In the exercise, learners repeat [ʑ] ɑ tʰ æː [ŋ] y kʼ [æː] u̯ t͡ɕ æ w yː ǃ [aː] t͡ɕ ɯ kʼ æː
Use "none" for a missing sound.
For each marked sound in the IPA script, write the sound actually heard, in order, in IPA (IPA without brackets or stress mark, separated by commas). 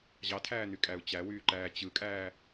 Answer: ʑ, n̪, æ, æː